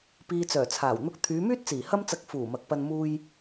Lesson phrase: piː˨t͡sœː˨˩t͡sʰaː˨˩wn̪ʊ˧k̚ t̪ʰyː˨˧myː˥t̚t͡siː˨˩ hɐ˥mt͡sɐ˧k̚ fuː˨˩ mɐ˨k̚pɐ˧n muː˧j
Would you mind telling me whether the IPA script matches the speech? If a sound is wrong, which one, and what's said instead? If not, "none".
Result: none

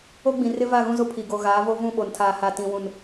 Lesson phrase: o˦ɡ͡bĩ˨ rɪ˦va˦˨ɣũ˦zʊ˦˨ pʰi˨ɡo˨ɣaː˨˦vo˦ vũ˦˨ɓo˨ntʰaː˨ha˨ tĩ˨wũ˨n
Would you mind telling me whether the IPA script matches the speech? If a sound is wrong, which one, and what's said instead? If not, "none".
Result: none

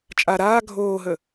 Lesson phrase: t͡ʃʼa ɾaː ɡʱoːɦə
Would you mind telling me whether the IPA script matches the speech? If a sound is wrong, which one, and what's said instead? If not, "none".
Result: none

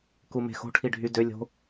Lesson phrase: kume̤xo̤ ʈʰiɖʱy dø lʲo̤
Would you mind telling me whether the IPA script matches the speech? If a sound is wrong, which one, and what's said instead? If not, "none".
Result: none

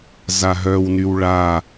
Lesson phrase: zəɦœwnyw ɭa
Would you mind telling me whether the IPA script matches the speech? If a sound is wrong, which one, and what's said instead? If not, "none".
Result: ə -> a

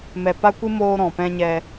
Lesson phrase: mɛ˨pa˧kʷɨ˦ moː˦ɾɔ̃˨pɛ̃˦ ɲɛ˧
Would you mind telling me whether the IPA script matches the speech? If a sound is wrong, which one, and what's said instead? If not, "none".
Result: a˧ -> a˦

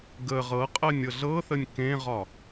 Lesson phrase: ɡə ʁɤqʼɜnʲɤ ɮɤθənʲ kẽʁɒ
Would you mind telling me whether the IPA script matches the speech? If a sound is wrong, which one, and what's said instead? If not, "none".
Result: none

